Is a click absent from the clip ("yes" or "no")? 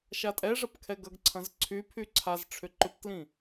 no